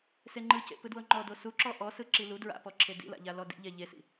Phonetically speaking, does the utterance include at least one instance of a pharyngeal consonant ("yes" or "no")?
no